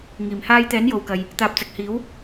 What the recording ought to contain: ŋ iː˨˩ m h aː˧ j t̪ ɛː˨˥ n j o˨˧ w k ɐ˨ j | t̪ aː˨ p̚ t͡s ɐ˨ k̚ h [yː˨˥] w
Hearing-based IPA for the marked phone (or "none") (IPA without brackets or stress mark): iː˨˥